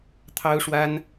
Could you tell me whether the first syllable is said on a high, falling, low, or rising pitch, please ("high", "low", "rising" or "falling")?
high